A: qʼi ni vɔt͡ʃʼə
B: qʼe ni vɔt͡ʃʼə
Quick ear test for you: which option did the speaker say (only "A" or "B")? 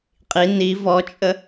A